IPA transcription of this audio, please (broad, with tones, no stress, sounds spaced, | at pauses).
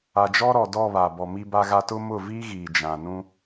a˨ d͡ʒ ɔ˦ ɾ ɔ˨ d ɔ˦˨ β a˨ b ɔ˨ m i˦ b a˦ ɣ a˦ t ʊ˦ m ʊ˦˨ v iː˦ ɣ iː˨ d͡ʒ ã˨ n ũ˦